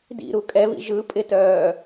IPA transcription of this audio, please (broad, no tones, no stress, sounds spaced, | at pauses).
d ḭ ɾ u kʼ ɛ β ḭ ʒ ɯ pʼ ɪ t œː